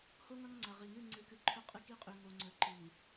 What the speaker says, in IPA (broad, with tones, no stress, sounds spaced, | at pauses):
h o˦ ŋ ɐ˦ ŋ ŋ͡ǀ ɐ˨ ʁ i˨ ŋ ɨ˦˨ ŋ͡ǀ ɨ˨˦ k ɨ˨ ǃʰ ɵ˦ qʼ ɨ˦ k i˦ qʼ ʉ˨ ŋ o˨ ŋ͡ǀ ɵ˨ ǃ i˨